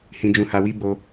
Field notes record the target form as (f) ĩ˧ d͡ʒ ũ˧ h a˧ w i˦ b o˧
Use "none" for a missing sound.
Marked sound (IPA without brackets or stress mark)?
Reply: h